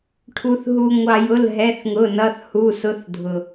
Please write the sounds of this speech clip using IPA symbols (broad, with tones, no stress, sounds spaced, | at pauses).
ʈʰ u˩ θ ɦ u˩ ŋʷ ɑ˩ j ʊ˩˧˩ l ɦ ɛ˩˧˩ θ ŋ ʊ˩˧˩ n ʌ˩˧˩ θ h u˩˧˩ s ʊ˨˦ θ dʱ ʊ˩